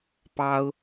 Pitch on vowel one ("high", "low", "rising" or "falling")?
high